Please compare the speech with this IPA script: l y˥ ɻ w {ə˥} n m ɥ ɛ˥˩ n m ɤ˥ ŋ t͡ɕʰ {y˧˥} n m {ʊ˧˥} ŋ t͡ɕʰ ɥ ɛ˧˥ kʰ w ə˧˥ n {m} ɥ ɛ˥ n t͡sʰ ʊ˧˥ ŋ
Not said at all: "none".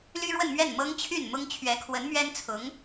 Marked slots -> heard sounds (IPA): ə˥˧, y˥˩, ʊ˥, m

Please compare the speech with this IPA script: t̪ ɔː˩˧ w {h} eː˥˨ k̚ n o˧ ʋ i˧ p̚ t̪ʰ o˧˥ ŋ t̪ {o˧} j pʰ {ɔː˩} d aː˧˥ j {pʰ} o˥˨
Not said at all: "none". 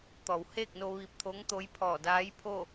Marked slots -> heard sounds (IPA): h, o˧˥, ɔː˧˩, pʰ

